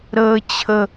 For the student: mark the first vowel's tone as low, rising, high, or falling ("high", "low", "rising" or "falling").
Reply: high